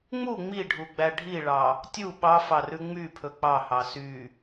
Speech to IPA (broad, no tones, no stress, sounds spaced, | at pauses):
ŋ͡m u ŋ͡m i ɖʱ u ɡ͡b æ ɖʱ i ɭ ɑ | tʲ u ɓ ɑ f ɑ r ʉ ŋ͡m y pʰ ɵ k͡p ɑ h ɑ s y